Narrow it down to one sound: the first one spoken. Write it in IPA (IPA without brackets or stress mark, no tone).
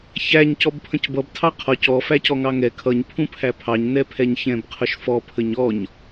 ç